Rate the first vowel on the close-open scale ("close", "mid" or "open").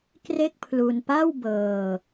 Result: mid